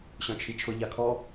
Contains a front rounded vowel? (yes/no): yes